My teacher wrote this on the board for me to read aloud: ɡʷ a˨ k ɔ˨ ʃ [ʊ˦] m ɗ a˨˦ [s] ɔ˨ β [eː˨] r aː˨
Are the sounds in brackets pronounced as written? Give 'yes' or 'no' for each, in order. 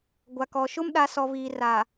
yes, yes, no

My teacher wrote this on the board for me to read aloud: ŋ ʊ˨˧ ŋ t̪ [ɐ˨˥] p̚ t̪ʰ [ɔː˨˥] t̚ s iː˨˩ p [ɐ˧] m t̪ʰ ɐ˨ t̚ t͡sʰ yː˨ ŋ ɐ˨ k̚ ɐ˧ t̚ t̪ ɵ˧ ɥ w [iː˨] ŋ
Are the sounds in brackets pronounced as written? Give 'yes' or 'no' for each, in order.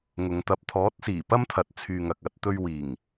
yes, yes, no, no

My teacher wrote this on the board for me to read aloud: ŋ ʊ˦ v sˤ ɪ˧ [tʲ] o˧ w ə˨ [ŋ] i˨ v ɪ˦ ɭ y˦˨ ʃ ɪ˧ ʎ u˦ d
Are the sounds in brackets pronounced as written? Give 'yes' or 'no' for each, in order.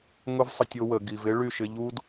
yes, no

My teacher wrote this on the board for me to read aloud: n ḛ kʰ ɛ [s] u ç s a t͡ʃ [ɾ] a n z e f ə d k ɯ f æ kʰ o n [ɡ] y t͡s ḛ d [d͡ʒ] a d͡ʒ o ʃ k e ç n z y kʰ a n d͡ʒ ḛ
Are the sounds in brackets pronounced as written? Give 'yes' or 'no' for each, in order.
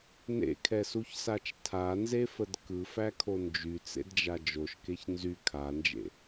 yes, no, no, yes

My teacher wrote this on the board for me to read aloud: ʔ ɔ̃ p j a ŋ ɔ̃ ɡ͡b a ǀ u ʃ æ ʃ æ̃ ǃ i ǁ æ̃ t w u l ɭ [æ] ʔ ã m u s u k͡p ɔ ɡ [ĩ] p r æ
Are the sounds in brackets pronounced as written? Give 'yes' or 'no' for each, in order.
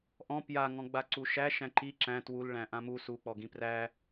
no, yes

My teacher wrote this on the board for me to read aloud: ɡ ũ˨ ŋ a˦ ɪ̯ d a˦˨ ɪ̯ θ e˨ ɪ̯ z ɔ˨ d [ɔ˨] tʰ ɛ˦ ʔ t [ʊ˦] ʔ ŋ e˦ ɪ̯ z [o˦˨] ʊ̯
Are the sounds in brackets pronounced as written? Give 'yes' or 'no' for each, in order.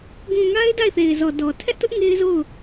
yes, yes, yes

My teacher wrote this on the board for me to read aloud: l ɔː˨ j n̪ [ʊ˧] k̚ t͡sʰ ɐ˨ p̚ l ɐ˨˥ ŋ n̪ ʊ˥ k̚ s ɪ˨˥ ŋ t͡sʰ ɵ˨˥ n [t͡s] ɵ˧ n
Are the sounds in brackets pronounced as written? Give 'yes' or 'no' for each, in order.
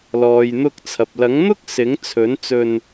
yes, yes

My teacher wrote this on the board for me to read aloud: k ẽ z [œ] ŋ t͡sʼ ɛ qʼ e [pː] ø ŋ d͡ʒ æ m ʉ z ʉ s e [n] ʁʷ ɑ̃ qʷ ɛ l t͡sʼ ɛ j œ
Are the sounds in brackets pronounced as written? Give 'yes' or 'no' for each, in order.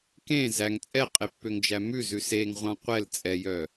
no, yes, no

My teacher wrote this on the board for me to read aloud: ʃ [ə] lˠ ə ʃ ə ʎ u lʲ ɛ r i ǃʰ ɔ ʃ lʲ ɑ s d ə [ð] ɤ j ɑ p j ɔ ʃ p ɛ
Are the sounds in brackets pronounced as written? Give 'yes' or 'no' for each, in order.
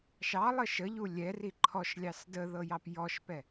no, yes

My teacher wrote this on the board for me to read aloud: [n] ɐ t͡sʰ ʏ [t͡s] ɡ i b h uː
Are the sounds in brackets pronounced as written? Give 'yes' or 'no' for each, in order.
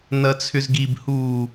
yes, no

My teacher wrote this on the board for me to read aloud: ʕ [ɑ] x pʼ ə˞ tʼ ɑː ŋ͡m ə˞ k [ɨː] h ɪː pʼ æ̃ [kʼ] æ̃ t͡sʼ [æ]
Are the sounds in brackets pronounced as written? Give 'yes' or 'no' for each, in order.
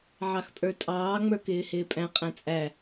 yes, no, no, yes

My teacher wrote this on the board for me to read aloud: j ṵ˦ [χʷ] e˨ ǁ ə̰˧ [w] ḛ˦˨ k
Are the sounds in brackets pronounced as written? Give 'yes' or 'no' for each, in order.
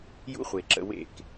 yes, yes

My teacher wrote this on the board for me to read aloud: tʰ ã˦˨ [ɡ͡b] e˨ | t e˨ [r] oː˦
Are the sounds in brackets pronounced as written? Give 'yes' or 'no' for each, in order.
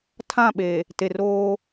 no, yes

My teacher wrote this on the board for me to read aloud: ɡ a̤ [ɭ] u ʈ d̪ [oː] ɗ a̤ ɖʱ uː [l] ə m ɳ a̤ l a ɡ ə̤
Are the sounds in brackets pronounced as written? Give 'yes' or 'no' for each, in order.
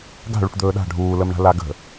yes, no, yes

